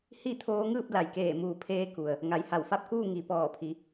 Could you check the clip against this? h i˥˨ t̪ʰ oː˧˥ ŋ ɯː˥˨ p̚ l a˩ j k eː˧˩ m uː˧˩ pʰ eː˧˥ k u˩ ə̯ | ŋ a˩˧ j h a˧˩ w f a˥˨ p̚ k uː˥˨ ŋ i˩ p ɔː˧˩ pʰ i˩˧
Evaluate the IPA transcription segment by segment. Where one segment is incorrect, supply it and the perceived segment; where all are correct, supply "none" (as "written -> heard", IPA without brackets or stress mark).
none